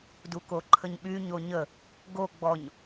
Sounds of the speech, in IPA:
d u k o ǃʰ ə ɲ ɓ y ɲ o ɲ ə | ɡ o ɡ͡b ɔ ɲ

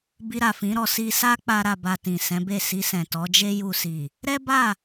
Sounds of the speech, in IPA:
b i˧ ɾ a˨ f ĩ˨˦ ɾ ɔ˧ s i˧ s a˦ k͡p a˧ ɾ a˨ b a˨ t ĩ˨ s ɛ̃˨˦ b e˦˨ s i˧ s ɛ̃˨ t ɔ˨˦ d͡ʒ e˦ j u˧ s i˨ | ɾ ɛ˦ b a˦˨

